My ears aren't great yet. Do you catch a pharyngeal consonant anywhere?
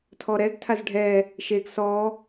no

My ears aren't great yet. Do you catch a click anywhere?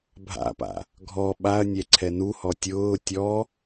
yes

